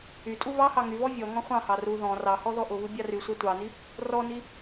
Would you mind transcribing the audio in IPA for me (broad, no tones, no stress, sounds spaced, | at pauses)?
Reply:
y tʼ u β ɑ h ɑ ŋ y β ɔ vʲ ɔ ŋ ɔ̃ χʷ ɑ̃ h ɑ r u ð ɔ̃ r ɑ h ɔ ð ɔ ʔ ʊ β ɨ bʲ ɑ r y sʷ a tʷ ɑ n i | r ɔ n i